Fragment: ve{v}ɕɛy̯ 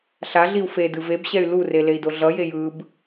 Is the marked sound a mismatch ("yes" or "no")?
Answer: yes